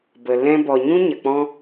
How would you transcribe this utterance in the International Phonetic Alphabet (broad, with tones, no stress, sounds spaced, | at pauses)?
b ə˨ l ɛ̃˦ b ɔ˨ ɲ ũ˦ ɲ ə˨ k͡p ɔ̃˦